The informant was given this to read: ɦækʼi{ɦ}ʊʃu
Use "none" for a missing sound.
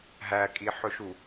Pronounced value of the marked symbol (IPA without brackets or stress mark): ħ